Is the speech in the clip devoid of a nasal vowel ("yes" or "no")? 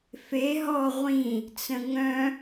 no